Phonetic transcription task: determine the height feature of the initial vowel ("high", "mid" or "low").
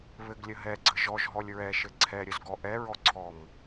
mid